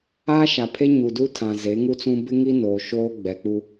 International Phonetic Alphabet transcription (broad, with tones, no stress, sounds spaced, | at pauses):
aː˦ ʃ a˨ pʰ e˦ ɲ u˨ d u˦ tʰ ã˨ z e˨˦ ŋ u˦ t͡s ũ˦ b ɪ˦ ŋ i˦ n oː˨ ʃ oː˦ ɡ͡b ɛ˨ k͡p u˦